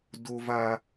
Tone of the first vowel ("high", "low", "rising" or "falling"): high